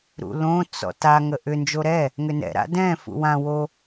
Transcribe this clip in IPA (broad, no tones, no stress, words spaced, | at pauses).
ɾṵlõ t͡sɔ̰ta ŋəʔʏ nd͡ʒoɾɛ | ŋʏnɛ̰ ɾa̰dɛ̃ fṵwã wo